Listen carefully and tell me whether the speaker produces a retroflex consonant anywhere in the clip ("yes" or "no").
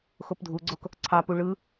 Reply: yes